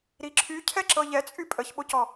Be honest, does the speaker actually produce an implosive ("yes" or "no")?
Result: yes